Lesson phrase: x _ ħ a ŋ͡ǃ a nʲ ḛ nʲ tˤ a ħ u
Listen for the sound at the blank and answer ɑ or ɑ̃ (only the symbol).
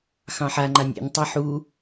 ɑ̃